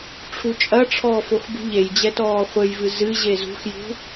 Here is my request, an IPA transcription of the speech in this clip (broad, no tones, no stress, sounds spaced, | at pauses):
ʈ͡ʂʰ u t͡ʃʼ ɐ ʈ͡ʂʰ ɔː f o x b ṳ ʎ e j d͡ʑ ɛ t ɔː χʷ ɘ j v ɨ z ɨ ʑ e z ṳ x j ṳ